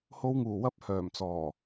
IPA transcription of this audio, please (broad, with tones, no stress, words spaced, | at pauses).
ho˨˧wŋuː˨˩wɐ˨˥p̚ hœː˨˩mt͡sɔː˨˩